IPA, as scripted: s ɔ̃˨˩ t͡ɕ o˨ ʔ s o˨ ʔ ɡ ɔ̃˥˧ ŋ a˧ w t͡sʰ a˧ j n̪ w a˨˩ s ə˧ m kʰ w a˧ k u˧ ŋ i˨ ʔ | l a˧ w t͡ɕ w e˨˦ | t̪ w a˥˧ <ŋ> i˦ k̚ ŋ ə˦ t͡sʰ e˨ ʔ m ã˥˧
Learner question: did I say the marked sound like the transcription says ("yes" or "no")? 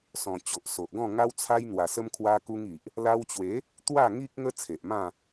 yes